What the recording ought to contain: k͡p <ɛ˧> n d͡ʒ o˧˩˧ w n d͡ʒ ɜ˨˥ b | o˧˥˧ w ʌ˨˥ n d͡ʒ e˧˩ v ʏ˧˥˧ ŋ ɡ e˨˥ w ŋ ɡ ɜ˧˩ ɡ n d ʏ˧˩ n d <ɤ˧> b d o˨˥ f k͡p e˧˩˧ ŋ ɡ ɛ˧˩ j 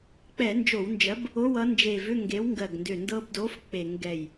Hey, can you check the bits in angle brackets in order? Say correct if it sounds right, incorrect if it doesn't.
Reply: incorrect: ɛ˧˩˧, correct

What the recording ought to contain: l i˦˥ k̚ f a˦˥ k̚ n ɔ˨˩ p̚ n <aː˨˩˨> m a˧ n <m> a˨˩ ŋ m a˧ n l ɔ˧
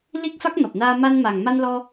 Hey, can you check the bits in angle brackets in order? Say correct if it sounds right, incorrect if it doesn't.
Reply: incorrect: aː˧, correct

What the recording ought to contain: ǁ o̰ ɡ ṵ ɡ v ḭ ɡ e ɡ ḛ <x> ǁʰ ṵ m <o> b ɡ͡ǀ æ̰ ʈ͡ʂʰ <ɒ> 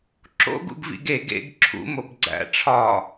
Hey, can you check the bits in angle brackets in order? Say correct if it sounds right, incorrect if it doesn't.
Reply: incorrect: ɡ, correct, correct

